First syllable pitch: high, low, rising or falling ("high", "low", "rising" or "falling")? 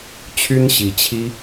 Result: high